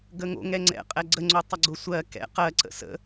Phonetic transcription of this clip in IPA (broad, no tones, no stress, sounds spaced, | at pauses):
ɡ ə ŋ o̰ ŋ ɛ ŋ͡ǀ ɛ̰ qʼ ɛ ɡ͡ǀ ə ŋ͡ǀ o tˤ ə ɡ͡ǀ ʊ sʷ ɜ k ɛ̰ q ɜ ǀ ə̰ s ə̰